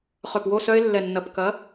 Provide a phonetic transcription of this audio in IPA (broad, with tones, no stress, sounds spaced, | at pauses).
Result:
χ œ˧˩ p w o˥˧ s œ˦˥ ɪ̯ lː ɛ˧˩ nː ɐ˧˩ p k ɐ˨˥